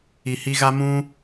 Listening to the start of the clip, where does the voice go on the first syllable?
low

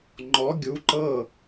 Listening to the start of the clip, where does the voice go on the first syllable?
rising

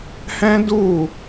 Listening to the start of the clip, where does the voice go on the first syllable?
high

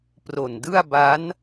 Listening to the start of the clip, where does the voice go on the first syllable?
low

